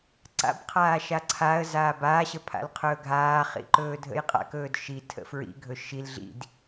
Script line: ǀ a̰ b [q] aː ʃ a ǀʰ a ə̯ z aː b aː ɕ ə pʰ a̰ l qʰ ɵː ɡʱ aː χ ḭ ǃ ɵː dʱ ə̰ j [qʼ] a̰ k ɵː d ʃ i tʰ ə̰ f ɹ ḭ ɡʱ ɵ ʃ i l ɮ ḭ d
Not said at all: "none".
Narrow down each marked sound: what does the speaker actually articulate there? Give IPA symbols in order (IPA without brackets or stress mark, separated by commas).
qʰ, qʼ